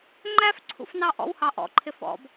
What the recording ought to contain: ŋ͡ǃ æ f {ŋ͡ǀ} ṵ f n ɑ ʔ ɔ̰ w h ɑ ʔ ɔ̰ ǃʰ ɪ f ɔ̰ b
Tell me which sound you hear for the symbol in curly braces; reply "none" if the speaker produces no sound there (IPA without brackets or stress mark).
ǀʰ